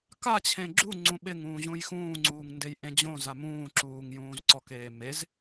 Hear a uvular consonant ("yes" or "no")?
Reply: no